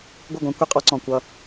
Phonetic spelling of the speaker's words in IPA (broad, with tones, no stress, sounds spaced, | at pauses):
ɡʷ ʌ˦˨ ɡʷ ẽ˦ kʷ e˦ qʼ ɔ˦ ǀ ɔ̃˨ kʷ ʌ˦˨